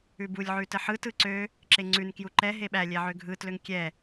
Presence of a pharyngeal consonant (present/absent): present